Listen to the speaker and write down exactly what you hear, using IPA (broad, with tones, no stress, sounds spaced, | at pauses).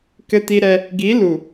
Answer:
k ɘ˦ t i˦ ɾ ɛ˦ | ɡ i˨˦ l u˨